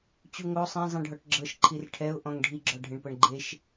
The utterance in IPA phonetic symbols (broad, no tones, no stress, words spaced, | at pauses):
t͡ɕuŋo sˤẽzˤĩɖʱɔʈ ɡ͡ǁɤʃ ǃʰirʈʰɛʊ̯ ʔɔ̃ŋɖʱiɡ͡ǁɔ ɖʱẽɳpɤɳɡ͡ǃeʃ